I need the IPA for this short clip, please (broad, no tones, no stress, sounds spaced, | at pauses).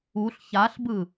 u ɬ ç a ɬ b ɯ